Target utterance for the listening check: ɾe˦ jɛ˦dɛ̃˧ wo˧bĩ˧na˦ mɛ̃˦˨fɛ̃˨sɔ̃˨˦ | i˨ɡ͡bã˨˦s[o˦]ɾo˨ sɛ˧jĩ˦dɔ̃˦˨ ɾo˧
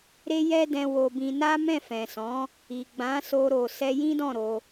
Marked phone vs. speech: incorrect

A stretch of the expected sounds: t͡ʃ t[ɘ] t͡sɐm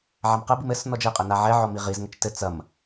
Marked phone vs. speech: correct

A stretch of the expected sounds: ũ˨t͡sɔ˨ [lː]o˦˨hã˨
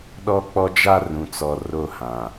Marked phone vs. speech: incorrect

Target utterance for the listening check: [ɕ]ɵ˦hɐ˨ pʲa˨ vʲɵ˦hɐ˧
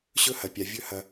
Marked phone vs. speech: correct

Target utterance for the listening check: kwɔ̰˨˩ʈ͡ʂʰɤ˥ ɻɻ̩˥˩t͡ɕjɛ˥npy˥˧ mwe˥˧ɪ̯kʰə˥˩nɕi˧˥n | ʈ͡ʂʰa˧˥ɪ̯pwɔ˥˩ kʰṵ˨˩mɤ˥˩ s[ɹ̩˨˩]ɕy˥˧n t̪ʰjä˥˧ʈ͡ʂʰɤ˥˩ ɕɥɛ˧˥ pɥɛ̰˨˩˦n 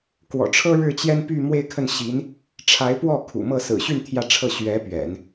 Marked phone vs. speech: correct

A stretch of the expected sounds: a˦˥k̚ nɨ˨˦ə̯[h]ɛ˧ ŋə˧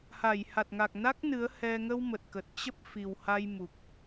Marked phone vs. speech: correct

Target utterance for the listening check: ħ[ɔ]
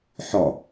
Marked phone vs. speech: correct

